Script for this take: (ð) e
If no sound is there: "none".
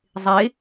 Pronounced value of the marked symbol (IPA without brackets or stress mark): zˤ